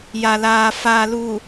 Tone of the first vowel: low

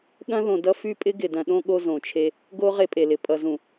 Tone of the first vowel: high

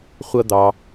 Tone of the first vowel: high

